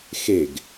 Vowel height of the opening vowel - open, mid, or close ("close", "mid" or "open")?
mid